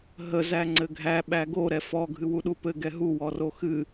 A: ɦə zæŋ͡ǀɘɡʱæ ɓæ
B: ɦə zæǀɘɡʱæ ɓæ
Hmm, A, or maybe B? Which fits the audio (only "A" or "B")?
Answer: A